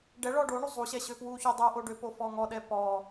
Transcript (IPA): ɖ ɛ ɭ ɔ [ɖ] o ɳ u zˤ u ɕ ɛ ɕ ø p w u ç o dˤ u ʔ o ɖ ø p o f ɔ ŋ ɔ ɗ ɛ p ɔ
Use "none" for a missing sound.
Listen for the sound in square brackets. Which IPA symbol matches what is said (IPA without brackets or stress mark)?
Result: ɖ